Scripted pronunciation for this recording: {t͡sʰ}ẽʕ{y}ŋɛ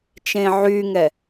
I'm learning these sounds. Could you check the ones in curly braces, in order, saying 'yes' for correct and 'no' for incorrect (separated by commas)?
no, yes